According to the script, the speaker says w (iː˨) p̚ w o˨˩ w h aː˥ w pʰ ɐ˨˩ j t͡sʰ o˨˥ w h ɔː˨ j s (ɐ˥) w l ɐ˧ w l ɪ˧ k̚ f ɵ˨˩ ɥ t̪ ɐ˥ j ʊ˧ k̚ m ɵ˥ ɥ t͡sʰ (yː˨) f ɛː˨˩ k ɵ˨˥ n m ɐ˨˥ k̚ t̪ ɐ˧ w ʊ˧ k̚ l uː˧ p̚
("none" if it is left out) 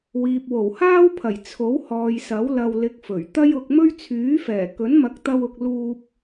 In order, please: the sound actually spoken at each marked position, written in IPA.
iː˨, ɐ˨˥, yː˨˥

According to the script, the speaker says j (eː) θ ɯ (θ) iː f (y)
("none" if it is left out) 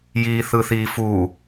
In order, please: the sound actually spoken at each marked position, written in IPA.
iː, θ, u

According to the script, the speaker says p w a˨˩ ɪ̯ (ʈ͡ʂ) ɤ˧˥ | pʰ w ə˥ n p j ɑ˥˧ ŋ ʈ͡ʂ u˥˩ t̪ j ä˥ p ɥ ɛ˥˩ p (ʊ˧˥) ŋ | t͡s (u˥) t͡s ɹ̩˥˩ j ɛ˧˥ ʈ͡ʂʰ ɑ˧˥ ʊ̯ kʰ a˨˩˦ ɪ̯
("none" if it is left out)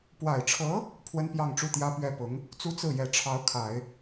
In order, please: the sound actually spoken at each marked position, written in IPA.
ʈ͡ʂʰ, ʊ˧˥, u˥

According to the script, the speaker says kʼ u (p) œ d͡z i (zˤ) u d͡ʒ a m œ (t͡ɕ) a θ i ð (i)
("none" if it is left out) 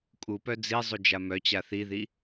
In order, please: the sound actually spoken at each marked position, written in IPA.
p, zˤ, t͡ɕ, i

